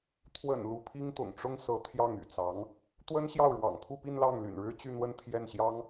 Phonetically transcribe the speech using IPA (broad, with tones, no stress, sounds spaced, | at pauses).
t̪ʰ w ə̰˨˩ n l u˧˥ pʰ i˥ ŋ t̪ ʊ̰˨˩ ŋ ʈ͡ʂ ʊ˥ ŋ s ɤ˧˥ t̪ʰ j ɑ˥˩ ŋ y̰˨˩ t͡s ɑ˧˥ ŋ | t̪ w ə˥ n ɕ j ɑ˥˩ ʊ̯ ɻ w ɑ̰˨˩ ŋ pʰ u˥˧ p i˥˧ n l ɑ˥˩ ŋ l y̰˨˩ n ɻ ɻ̩˥ t͡ɕ y˥˧ n̪ w ə˥˧ n t̪ʰ j ɛ˥˩ n ɕ j ɑ˥ ŋ